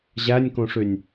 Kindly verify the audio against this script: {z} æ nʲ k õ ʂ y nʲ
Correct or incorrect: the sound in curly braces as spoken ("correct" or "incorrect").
incorrect